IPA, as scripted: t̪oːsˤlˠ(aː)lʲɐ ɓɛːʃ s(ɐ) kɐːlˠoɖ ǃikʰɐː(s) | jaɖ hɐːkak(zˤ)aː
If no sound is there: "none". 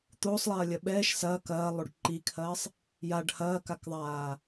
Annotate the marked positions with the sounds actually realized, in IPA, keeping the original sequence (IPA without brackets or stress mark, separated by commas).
ɐː, ɐː, sˤ, ðˤ